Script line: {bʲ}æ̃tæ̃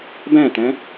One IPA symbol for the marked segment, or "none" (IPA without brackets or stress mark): b